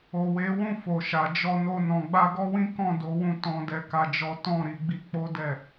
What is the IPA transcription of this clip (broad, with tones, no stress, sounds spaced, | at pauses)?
o˨ w e˨˦ w ũ˦˨ f o˨ ʃ a˨ d͡ʒ ɔ˧ n o˧ n ɔ̃˨ ɡ͡b a˧ ɡ ɔ˦ w ĩ˦ k ɔ̃˦˨ d o˨˦ w ũ˧ t ɔ̃˧ d ɛ˧ k a˦ d͡ʒ ɔ˦ t ɔ̃˦˨ ɾ i˨˦ ɡ͡b i˧ k͡p o˦ d ɛ˦˨